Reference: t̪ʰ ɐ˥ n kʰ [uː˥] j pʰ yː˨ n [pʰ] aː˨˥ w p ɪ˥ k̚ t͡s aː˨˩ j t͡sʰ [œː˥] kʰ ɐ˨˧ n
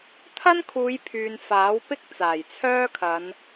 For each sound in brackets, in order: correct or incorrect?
incorrect, incorrect, correct

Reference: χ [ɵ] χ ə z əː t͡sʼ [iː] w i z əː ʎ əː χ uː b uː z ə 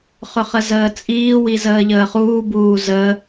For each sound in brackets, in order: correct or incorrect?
correct, correct

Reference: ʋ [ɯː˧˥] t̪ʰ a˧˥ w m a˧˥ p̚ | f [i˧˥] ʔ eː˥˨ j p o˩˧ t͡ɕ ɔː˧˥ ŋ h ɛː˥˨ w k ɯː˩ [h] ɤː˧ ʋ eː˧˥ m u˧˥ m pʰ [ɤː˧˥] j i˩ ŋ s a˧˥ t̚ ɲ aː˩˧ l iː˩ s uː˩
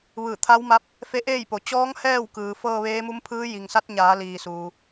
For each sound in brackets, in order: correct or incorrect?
incorrect, incorrect, incorrect, incorrect

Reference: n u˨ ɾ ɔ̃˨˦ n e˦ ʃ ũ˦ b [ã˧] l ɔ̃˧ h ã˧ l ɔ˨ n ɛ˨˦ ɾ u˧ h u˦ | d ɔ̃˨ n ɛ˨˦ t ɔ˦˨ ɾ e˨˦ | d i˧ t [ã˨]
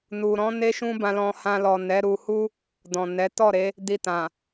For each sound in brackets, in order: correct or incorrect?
correct, correct

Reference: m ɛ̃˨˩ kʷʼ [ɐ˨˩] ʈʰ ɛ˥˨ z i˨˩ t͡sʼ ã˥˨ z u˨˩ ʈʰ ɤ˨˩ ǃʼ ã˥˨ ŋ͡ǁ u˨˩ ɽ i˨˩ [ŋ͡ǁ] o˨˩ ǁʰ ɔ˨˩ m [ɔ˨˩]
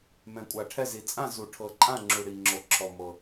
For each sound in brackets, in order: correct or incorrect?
incorrect, correct, incorrect

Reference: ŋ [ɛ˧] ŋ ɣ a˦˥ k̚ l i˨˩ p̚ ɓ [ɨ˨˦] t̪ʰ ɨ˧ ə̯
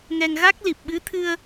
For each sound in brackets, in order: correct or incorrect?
correct, correct

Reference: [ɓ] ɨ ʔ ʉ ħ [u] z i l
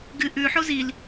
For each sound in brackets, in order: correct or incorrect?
incorrect, incorrect

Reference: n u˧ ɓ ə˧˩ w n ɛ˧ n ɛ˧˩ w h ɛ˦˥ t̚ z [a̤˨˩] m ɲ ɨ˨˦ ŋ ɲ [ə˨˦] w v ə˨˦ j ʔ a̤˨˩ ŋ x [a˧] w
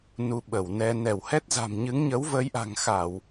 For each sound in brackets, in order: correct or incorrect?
correct, correct, incorrect

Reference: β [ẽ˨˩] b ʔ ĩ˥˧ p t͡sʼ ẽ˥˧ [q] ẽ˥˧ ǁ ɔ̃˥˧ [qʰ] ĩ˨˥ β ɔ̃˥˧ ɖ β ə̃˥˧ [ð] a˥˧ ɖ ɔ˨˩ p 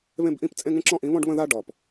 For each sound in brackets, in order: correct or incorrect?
incorrect, incorrect, incorrect, correct

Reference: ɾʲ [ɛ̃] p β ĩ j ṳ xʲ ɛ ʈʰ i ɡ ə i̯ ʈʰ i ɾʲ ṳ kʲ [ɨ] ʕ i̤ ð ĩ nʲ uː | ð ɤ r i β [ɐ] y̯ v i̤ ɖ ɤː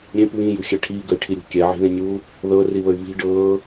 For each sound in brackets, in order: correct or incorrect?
incorrect, incorrect, incorrect

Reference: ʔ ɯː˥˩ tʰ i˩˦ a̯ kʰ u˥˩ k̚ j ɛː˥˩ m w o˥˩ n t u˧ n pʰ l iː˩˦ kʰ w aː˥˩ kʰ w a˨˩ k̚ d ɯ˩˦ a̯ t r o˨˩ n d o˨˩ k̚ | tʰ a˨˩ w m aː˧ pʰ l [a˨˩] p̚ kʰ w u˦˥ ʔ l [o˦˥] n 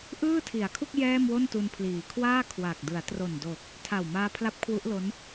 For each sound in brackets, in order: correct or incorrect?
incorrect, correct

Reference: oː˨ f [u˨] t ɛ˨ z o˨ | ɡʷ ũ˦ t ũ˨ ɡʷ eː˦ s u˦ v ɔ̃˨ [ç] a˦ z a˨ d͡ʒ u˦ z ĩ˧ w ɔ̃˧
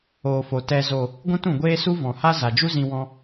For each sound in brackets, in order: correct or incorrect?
incorrect, incorrect

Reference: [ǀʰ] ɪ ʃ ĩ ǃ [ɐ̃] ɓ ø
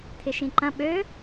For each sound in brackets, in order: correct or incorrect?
incorrect, correct

